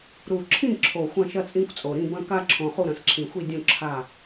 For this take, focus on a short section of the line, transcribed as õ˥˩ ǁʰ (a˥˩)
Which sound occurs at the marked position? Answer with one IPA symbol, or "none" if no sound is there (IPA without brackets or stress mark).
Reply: a˥˩